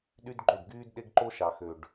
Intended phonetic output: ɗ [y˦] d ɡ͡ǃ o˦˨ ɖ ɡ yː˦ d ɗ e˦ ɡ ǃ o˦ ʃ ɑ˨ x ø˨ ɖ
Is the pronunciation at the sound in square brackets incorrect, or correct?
correct